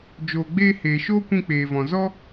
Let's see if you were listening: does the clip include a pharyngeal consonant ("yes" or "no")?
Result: no